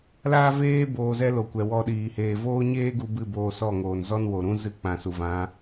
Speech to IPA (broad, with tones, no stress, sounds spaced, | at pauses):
l aː˦ v eː˦ b oː˧ z ɛ˦ l o˨ kʷ ɛ˨ w ɔ˧ ɗ iː˨ h eː˨ v oː˦ ɲ eː˦ ɡ u˧ b ɨ˦˨ b oː˧ s ɔ˦˨ ŋ oː˨ n z ɔ˦ n w o˨ ɾ ũ˦ z ɨ˧ k͡p ã˨ s u˨ v ã˨˦